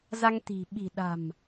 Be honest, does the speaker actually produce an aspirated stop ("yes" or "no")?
no